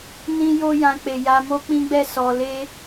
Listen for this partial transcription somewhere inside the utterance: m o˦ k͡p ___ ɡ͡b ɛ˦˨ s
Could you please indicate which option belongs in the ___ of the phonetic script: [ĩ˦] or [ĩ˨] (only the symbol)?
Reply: ĩ˦